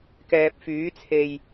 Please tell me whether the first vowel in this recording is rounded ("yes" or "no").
no